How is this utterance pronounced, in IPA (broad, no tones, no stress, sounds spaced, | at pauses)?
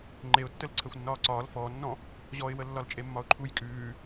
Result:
ŋ͡ǃ e ʊ̯ tː ə l ǀʰ əː xʷ nː ɒː ǀ ɒː l f ɔː nː ɔ̃ | ʑ ɔ ɪ̯ w ə lː ɒ l t͡ʃʼ e mː ɒ ʊ̯ ǃʰ u j kʼ ʉː